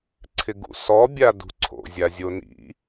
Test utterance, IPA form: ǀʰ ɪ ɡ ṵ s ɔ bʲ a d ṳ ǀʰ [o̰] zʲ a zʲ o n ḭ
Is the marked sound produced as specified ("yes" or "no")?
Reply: yes